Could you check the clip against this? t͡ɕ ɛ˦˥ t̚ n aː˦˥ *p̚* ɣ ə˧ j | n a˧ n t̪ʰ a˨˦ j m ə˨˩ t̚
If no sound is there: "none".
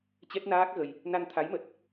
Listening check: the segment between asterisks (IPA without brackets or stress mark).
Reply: k̚